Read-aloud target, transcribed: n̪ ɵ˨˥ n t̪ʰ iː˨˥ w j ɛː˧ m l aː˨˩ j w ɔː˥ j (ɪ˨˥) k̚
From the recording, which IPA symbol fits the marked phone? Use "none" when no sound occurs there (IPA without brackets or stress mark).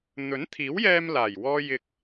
ɪ˧